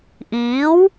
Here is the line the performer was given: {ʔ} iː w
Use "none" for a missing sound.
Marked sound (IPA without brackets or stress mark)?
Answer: ʔ